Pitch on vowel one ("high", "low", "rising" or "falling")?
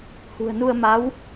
low